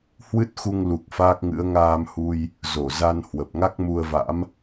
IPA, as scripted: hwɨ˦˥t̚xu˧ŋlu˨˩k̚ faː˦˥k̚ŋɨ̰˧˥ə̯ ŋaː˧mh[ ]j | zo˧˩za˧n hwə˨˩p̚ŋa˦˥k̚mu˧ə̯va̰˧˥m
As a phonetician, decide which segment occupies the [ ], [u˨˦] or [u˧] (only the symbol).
u˧